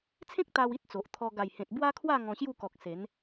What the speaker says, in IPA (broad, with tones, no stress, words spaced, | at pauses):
t͡sʰẽ˦k̚t̪a˧w i˦t̚t͡so˨ʔt̪ʰɔ˧ ɡa˨˩jhẽ˨t̚ bwa˦kʰwa˥˧ ŋɔ̃˧ɕju˥˧kɔ˨k̚ se˨˦n